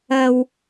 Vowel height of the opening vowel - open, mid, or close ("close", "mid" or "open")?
open